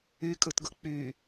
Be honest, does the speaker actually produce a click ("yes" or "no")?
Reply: no